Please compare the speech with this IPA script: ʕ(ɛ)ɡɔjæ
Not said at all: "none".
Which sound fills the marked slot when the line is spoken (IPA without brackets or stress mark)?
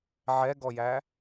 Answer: ɛ